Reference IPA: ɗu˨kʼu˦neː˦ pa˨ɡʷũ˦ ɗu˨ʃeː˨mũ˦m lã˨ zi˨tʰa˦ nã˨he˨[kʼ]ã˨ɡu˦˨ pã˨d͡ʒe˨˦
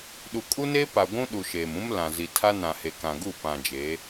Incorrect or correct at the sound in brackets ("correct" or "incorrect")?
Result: incorrect